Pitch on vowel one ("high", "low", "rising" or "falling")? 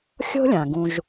high